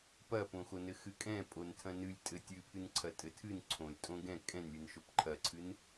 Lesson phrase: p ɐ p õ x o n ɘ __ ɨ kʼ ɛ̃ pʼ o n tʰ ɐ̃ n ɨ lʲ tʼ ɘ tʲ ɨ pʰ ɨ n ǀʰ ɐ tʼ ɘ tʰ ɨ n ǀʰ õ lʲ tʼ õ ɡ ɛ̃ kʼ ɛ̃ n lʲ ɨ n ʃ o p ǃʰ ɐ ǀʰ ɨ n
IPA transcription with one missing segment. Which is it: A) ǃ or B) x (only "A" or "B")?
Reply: B